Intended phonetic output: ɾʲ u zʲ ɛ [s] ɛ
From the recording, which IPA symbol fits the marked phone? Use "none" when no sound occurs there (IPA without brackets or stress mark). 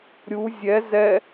z